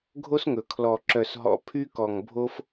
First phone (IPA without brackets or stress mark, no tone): ɡʱ